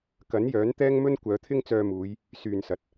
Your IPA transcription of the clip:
kɐ˨˥njœː˨˥n t̪ɛː˥ŋmɵ˥n kʷœː˨˧t̪ʰɪ˥ŋt͡sœː˧muː˨˧j | syː˨nsɐ˨t̚

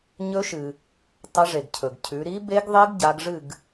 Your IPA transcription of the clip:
ɲɵ˧˥ʃɨ˩ | tˤɐ˧˥ʐe˩ɡcʰɵ˩ɡcʰʉ˩˧ ɾi˧˥ be˧˥ɡðˤe˧˥ɡ ɟa˩˧ɡʐɨ˥˩ɡ

